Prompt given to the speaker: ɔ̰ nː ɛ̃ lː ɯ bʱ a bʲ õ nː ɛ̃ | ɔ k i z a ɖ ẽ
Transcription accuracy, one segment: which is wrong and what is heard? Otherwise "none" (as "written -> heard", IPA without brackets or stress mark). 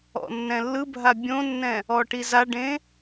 k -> ʈ